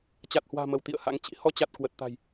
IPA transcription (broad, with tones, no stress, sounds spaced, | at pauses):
t͡ɕ a˨˩ t̚ h w a̤ː˨˩ m ə˧˩ w t̪ ḭ˧˨ ə̯ h a̰˧˥ ŋ t͡ɕ ḭ˧˥ h ɔ˧ t͡ɕ a˨˩ t̚ k w ə˨˩ t̚ t̪ a̤˨˩ j